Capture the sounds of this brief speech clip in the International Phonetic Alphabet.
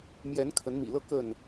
mjɛ˨˦nkʰə˨˦nmḭ˨˩lɤ˥˨ kə˥˨n

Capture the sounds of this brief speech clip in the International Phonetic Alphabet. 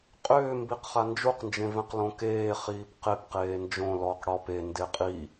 qʼʏːmbiqχa nd͡ʒuqnd͡ʒẽvẽqlõ keːχiːp qepqeː nd͡ʒõ lɔq ɽɔp ende qʼi

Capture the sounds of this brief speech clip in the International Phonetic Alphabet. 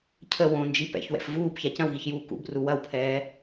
cʰə wõnd͡ʒi pɛ̰çwɛ̰f vuːbça cɐ̃wɣiçjuː kṵbru wɐwpʰɛː

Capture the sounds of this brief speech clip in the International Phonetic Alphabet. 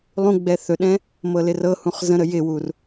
lˠũɡ͡bɛ θɵɗɛ̃ | mɤlɪrɤhũχ zə̃ɾə jɪwur

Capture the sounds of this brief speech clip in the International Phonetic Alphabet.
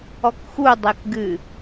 ɔkxudˤek ɡɨ

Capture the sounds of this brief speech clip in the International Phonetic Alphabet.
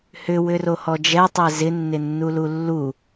hʏ wʏrohɔd͡ʒɛ tˤɛzɪ nːɪnːululːu

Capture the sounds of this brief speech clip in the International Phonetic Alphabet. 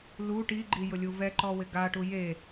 lu ʈiɡ͡ǃi jʊlʲuvɛǃɔ wɪɡaʈu je

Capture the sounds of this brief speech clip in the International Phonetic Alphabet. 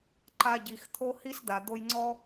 ǃa˧ɟi˨xt̪ʰo˦ hi˦sd̪a˨ d̪o˧jŋ͡ǀɔ˦

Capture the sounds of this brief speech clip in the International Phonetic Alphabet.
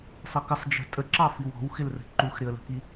sˤʌkəsˤ d͡ʒə̤ tʼəǁɑ fiwɔ̤wxɪlrə̤ ǃuxɾɪə̯lə̤ki

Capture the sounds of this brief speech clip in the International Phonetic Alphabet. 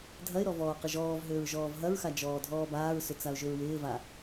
dʱɐɪ̯ɾɔ vɔːqəʒɔːvɦʏːɹ ʒɔːvɦɐɹxa d͡ʒɔːdʱɔːbaːɹsʏ t͡saʊ̯ʒʏɹwɪːva

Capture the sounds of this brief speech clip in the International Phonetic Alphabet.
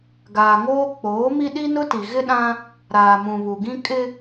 ɡaː˨ŋoː˦ k͡poː˨˦mi˦ ɗi˦nʊ˦ti˨ ɣɪ˦ɗã˦ | ɾaː˨mũ˨βu˨ɡĩ˦ kʼɪ˦

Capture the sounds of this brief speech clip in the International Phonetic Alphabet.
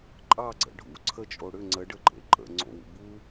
ǃʼɑɡ͡ǀə̰ ɖʱṵ ǀʰət͡ʃʼo ɽʏ ŋ͡ǀəɖəǃʼḛ ǃʼə̰ ŋ͡ǀo̰wṵ bu

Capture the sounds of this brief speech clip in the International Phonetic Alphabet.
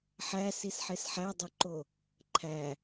ħæsisħes ħædˤoǃo | ǃʰæ

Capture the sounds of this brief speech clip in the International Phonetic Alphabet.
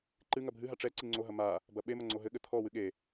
ǃɨ ŋɐbʱɨɦa ʈ͡ʂɛ ǀiŋ͡ǀoɦɐ ma | bɐɓemɐ ŋ͡ǀoɦɘɠɘ t̪ʰɔwɨ ɠe

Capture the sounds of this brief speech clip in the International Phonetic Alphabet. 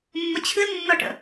mːət͡ɕʰɨlnːɔʈə̰

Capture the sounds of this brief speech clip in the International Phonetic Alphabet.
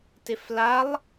tɪflalˠ

